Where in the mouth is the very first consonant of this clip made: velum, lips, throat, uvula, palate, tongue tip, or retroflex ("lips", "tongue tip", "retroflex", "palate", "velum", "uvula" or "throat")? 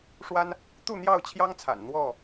retroflex